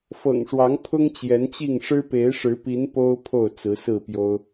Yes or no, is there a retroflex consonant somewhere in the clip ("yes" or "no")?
yes